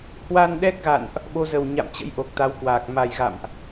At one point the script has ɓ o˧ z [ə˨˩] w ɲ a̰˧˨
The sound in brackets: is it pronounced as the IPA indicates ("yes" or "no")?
yes